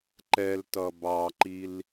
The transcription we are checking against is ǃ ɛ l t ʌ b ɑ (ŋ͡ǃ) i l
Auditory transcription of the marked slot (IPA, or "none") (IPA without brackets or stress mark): ǃ